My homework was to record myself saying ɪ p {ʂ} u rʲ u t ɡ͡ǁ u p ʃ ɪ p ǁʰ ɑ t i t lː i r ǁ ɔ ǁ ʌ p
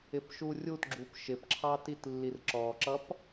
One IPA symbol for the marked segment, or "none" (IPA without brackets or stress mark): ʃ